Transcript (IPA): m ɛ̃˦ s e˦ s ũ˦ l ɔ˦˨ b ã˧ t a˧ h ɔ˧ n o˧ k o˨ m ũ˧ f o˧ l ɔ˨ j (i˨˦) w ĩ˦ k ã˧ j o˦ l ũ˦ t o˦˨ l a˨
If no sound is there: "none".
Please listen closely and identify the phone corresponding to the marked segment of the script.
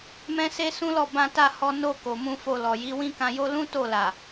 i˨˦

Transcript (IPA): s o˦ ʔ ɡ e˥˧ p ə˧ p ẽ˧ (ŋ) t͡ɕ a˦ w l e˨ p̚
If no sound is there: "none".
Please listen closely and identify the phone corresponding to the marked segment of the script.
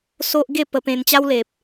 n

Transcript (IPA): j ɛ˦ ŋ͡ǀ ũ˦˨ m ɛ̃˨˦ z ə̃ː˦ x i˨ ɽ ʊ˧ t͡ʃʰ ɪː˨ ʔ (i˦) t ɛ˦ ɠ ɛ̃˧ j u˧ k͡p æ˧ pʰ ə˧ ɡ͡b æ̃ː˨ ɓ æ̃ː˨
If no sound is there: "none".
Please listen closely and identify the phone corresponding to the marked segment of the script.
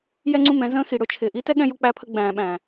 i˦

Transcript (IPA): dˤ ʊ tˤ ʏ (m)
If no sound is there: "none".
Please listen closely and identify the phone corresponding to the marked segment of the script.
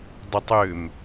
m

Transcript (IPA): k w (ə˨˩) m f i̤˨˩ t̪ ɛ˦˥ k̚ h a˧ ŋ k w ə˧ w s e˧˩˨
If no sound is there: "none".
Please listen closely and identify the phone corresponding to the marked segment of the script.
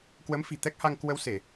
ə˨˦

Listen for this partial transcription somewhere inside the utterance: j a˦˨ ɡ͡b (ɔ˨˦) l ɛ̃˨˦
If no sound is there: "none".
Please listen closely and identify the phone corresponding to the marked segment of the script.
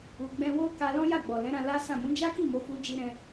ɔ˨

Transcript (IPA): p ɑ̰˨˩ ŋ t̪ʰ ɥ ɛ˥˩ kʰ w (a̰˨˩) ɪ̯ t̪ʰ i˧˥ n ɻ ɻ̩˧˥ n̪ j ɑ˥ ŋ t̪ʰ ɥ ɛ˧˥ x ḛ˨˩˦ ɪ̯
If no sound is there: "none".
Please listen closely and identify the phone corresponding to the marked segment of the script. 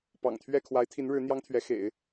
a˧˥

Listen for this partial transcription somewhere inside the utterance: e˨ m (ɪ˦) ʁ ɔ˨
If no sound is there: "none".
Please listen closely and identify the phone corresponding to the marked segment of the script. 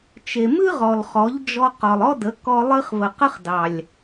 ɨ˦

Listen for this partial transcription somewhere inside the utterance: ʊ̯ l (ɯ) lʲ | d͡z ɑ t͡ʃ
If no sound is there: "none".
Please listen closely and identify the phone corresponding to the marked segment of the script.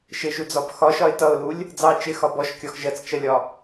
u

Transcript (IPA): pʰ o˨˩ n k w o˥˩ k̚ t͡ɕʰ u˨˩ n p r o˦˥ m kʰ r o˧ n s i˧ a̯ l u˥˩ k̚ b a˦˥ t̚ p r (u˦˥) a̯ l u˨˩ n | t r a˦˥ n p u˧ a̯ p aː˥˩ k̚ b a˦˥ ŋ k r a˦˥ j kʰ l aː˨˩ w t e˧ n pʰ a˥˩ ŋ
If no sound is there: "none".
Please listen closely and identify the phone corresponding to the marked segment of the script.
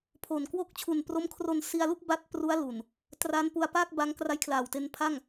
u˦˥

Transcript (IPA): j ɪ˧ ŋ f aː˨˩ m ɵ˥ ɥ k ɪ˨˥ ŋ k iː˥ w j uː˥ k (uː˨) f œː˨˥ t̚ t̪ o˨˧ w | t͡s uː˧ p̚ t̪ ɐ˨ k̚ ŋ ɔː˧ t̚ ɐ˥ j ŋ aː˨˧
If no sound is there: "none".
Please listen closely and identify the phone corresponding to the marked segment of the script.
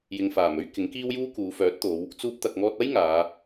uː˨˧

